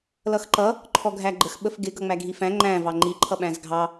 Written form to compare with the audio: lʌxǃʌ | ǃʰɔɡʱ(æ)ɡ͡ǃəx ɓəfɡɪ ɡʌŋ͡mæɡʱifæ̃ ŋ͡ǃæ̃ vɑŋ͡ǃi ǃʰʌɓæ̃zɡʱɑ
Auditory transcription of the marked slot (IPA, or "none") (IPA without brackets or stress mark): æ